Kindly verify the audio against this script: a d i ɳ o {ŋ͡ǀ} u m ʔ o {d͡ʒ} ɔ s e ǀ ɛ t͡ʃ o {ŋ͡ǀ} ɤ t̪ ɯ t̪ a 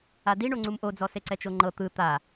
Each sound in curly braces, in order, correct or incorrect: correct, incorrect: d͡z, incorrect: ŋ͡ǃ

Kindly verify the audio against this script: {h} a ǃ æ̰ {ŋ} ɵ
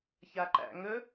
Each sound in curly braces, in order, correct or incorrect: incorrect: ç, correct

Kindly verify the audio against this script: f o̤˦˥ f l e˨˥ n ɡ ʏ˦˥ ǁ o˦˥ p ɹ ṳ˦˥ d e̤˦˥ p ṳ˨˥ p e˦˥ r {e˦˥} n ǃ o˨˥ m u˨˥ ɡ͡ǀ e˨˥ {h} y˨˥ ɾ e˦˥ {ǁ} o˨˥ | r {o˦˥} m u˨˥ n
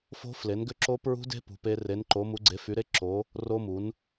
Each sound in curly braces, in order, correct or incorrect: incorrect: e˨˥, incorrect: f, correct, correct

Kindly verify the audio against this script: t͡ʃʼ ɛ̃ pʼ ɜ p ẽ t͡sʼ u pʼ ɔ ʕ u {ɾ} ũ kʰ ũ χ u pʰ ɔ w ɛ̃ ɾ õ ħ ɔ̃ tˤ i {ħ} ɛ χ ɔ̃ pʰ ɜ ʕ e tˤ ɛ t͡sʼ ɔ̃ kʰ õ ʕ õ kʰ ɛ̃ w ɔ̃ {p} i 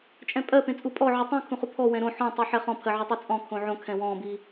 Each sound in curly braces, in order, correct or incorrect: incorrect: tˤ, correct, incorrect: b

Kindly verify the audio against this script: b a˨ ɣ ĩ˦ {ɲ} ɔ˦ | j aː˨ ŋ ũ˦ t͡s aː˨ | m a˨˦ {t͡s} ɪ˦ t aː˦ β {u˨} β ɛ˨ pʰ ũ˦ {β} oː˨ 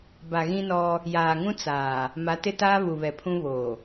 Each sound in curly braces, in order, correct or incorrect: incorrect: n, incorrect: t, correct, correct

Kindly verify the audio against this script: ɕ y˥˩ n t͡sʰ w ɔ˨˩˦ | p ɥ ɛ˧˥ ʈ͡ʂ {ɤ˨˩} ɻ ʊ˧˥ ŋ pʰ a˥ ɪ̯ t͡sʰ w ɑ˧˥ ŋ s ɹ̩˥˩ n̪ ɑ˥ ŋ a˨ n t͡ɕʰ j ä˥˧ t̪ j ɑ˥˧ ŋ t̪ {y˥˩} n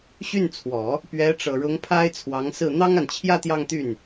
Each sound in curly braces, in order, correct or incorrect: correct, correct

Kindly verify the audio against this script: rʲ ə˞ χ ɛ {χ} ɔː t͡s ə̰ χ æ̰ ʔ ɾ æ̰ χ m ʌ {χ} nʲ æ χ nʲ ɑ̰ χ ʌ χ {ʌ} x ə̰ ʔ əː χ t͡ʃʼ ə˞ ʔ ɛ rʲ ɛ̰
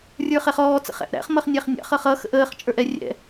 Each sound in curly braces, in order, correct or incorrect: correct, correct, correct

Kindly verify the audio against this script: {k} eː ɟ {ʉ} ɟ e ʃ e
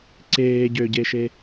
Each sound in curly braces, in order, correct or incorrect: incorrect: ǀ, incorrect: ø

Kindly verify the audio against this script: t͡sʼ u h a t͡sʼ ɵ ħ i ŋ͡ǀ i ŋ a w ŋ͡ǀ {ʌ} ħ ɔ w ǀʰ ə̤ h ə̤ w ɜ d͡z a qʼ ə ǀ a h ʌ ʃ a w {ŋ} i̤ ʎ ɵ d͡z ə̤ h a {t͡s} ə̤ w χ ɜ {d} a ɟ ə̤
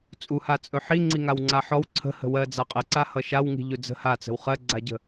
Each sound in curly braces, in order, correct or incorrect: incorrect: a, correct, correct, incorrect: ɡ͡ǀ

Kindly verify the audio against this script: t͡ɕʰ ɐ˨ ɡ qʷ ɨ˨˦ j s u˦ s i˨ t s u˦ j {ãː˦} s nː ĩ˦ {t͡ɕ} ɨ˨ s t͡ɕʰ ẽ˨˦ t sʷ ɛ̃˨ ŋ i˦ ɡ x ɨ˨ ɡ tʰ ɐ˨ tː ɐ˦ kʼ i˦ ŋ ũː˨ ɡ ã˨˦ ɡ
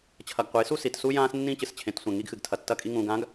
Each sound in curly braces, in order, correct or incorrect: correct, correct

